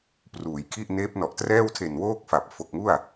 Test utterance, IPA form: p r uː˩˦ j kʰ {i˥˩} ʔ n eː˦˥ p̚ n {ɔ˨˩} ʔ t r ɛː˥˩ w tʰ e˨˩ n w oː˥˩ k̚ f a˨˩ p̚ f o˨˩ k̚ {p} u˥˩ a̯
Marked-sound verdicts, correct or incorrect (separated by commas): correct, correct, incorrect